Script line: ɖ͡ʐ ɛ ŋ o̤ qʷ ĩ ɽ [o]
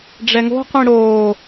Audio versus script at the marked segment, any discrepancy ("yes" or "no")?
yes